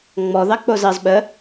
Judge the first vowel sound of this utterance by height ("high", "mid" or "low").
mid